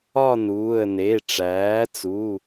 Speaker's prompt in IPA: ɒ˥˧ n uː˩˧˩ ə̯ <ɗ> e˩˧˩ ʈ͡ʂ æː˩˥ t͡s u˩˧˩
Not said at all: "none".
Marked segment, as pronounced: n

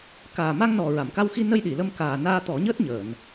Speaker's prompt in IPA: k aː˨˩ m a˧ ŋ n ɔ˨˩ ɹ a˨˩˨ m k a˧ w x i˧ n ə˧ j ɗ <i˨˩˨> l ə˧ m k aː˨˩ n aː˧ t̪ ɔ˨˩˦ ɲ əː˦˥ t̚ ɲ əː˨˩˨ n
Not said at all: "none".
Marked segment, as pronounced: i˨˩˨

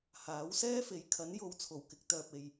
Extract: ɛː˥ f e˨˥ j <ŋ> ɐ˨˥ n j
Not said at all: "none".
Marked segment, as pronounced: kʰ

